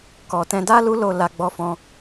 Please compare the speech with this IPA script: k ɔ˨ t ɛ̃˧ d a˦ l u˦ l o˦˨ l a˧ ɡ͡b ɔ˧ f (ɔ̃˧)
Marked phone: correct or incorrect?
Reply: correct